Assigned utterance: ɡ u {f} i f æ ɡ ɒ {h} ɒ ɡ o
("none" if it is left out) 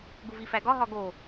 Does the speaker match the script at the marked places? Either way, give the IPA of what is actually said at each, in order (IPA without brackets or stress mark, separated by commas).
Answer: v, ɦ